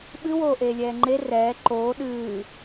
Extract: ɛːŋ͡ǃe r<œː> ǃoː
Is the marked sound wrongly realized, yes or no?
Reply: yes